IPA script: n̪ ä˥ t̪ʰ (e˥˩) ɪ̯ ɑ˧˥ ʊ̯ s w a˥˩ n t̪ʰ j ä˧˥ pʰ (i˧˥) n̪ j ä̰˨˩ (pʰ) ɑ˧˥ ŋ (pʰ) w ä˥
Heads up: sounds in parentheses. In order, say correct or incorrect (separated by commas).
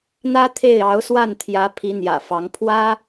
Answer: correct, correct, incorrect, correct